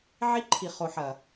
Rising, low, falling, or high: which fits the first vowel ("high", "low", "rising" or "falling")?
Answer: high